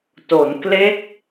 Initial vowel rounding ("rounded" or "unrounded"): rounded